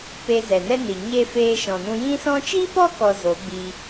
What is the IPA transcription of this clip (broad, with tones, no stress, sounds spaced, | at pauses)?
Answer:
p e˧ z ɛ˨ n ɛ˦ n i˨ ɲ e˦ f eː˧ ʃ ɔ̃˨ n ũ˧ j ĩ˧ s ɔ̃˧ t͡ʃ i˦ p ɔ˦ k ɔ˧ z o˨˦ ɡ͡b i˧